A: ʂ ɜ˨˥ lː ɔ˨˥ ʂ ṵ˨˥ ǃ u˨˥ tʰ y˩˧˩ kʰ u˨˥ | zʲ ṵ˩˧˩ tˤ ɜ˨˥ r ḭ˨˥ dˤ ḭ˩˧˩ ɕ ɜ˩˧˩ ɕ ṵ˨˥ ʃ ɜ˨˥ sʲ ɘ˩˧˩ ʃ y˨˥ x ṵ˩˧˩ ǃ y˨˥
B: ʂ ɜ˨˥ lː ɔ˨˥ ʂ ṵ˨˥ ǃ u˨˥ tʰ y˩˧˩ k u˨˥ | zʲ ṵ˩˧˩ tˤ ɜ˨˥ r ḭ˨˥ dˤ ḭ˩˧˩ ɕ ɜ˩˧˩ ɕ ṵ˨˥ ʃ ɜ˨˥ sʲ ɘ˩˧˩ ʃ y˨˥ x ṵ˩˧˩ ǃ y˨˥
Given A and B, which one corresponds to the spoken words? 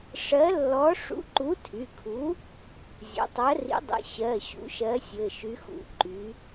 A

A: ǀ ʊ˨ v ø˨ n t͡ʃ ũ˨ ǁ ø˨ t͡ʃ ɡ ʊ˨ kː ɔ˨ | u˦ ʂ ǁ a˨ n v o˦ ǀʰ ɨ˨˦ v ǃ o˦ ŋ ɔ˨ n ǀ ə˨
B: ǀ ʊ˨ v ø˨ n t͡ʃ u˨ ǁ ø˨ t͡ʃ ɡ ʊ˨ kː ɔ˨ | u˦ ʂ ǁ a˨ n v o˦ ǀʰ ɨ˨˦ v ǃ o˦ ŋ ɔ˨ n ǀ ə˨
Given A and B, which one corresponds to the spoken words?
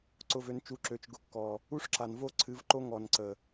B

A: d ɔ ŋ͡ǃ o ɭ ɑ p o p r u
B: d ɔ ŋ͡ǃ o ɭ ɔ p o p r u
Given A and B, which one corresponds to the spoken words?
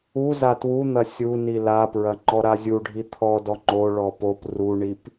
B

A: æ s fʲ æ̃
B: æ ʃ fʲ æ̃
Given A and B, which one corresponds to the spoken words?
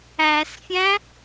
A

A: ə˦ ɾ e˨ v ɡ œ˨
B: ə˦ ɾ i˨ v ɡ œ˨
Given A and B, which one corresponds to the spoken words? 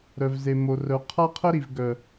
B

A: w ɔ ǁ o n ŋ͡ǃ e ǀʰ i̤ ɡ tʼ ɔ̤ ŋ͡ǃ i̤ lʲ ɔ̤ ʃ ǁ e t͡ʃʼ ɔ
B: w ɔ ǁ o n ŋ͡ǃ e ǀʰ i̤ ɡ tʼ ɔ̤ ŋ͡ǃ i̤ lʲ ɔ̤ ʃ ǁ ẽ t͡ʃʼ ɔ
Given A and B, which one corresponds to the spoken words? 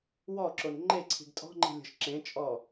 B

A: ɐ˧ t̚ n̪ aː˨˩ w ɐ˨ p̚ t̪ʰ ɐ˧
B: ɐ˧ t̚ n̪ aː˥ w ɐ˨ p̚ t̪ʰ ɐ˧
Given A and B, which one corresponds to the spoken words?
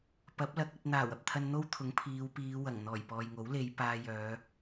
A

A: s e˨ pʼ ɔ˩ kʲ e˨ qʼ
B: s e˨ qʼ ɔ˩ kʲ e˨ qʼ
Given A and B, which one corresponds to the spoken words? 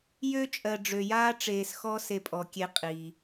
A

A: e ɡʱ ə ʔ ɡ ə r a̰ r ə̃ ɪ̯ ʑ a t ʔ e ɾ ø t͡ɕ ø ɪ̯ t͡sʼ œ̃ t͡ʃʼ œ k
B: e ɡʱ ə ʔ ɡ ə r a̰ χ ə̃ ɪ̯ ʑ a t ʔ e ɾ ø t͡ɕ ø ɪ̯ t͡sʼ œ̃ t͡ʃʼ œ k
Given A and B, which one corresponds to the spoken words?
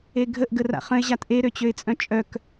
B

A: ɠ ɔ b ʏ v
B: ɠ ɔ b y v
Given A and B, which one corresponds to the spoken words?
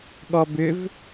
A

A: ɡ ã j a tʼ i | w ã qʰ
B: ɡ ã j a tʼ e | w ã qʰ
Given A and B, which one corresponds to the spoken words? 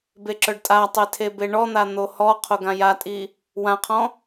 A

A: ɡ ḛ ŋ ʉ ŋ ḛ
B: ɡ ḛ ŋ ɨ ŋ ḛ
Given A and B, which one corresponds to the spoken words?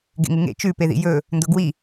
B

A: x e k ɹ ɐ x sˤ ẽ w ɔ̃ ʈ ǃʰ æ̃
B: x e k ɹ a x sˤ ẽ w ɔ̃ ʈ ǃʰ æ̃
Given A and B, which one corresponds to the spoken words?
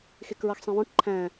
A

